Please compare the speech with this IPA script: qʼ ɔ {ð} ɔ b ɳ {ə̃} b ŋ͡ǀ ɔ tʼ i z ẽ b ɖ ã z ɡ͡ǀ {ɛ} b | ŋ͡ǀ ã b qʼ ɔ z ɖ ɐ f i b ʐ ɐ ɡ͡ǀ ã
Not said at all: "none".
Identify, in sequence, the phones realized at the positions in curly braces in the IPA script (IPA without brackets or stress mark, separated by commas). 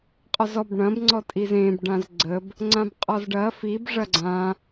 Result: z, ɐ̃, ə